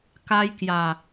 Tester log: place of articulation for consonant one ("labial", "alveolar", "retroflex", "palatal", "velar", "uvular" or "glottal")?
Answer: velar